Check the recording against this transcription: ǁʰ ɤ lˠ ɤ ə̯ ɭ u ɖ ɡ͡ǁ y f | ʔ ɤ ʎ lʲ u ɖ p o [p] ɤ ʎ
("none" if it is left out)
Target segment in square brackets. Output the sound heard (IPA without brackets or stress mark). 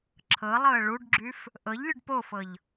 f